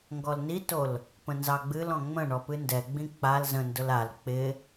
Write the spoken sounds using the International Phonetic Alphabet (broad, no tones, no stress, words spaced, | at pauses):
ŋɡɔlnitol | pə̃nzɑɡ͡bɨlɔ̃ ŋ͡mə̃ɳɔ pɨndɛɡ͡bĩ k͡pal zə̃ndʊl al k͡pɪ